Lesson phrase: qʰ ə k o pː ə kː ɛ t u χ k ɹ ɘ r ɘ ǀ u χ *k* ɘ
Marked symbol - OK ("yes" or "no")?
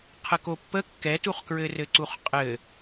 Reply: no